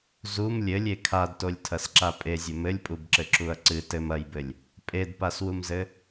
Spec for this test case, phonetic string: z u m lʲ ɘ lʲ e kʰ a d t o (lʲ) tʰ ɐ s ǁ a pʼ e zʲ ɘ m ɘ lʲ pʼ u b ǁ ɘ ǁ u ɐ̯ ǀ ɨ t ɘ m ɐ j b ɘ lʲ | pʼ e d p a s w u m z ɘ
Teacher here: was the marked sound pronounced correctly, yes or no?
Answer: yes